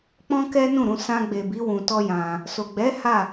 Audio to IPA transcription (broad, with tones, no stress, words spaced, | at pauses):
k͡pɔ̃˦kɛ˦nũ˦˨ɾũ˧ sã˧ɡ͡be˨bi˨˦ wũ˧tɔ˦jã˧ | so˨ɡ͡bɛ˨˦ ha˦˨